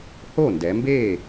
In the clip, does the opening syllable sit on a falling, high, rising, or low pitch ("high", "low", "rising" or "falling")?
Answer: falling